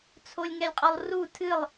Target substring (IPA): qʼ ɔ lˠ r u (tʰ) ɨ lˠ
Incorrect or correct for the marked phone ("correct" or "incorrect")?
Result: correct